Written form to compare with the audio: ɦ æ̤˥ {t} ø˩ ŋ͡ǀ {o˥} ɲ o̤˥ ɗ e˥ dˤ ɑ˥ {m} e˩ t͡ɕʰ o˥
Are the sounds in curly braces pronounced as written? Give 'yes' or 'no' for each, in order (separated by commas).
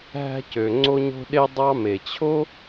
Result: no, yes, yes